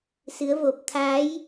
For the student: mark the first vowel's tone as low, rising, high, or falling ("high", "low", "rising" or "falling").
rising